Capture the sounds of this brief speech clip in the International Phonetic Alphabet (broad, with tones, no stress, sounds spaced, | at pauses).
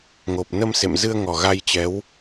ŋ o˨˩ p̚ n ə˧ m s ḛ˧˨ m z ɨ˧ ə̯ ŋ ɔ˨˩ ɣ a˧ j t͡ɕ ɛ˨˦ w